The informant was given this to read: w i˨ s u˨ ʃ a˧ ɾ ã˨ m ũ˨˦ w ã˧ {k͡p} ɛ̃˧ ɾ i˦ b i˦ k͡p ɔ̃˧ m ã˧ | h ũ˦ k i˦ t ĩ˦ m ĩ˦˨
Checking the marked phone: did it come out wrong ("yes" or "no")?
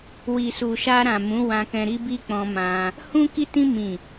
yes